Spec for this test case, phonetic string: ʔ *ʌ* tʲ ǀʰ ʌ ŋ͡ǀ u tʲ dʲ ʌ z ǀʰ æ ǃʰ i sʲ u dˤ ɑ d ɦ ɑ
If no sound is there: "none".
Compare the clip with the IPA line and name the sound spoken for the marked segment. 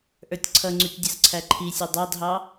ə˞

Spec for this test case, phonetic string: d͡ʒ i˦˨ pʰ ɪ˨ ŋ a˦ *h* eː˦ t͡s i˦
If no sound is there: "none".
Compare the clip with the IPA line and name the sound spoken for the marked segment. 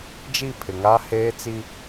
h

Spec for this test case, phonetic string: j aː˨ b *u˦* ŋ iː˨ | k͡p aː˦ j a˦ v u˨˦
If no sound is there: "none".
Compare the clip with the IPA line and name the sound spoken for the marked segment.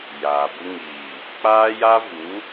u˦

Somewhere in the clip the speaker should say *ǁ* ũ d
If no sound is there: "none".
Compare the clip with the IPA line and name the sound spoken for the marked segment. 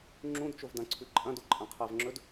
ŋ͡ǁ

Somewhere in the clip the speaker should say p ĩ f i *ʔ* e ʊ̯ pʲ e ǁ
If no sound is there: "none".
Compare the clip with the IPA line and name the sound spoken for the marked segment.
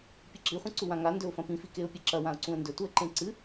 k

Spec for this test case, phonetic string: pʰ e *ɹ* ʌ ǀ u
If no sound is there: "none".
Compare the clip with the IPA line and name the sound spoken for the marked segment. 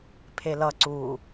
l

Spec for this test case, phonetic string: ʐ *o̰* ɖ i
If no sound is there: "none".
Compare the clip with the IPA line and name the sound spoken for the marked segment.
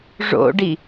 o̰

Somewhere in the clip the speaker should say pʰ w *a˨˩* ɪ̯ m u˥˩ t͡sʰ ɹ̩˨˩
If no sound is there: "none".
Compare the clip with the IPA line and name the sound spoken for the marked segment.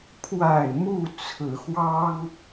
a˨˩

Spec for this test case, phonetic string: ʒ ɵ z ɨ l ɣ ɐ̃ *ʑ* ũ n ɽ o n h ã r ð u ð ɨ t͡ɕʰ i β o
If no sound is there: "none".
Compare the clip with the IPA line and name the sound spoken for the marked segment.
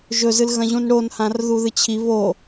ʑ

